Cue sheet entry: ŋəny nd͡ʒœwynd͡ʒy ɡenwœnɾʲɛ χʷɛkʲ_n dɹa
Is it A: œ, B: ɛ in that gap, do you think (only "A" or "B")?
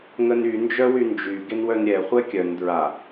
A